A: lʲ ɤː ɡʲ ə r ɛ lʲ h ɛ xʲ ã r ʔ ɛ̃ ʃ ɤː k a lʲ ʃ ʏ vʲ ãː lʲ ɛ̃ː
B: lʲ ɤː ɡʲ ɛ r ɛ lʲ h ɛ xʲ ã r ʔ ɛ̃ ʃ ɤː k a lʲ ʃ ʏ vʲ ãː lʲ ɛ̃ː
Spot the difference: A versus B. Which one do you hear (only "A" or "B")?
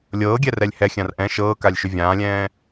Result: B